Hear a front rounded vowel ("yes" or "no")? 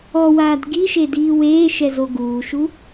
no